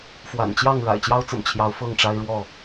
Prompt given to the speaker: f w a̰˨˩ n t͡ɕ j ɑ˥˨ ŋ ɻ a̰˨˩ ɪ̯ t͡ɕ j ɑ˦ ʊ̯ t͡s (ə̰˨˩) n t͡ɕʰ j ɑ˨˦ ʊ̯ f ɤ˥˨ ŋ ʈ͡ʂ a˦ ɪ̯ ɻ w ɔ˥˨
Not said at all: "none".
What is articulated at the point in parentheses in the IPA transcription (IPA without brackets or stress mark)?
ə̰˨˩